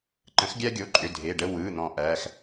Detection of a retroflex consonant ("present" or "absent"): present